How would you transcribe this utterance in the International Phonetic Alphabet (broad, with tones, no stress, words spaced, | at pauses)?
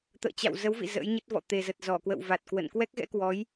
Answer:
t̪ə̰ː˧˨t͡ɕa̰˧˨w zə˨˦wvḭ˧˨ zə̰˧˥jɲə˦˥t̚vɔ̰˧˨ t̪e˨˩zə˨˩t̚ zɔ˧˩kwə̰˧˨wva˨˩t̚kwə̰˧˨n kwɛ˦˥k̚ɣɛ̰˧˥kwɔ˨˦j